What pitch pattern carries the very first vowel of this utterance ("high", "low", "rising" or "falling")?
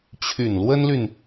low